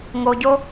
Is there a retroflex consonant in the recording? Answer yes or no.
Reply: no